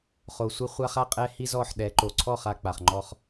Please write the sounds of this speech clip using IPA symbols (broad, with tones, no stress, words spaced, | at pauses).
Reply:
χo˩sʷɛ˧ χʷa˧χa˥˩qʼɛ˧hi˧ zɔ˥˩ħɗɛ˩˥ ǃo˩ǀʰɔ˥˩χ a˧k͡pa˩χŋ͡ǃɔ˧χ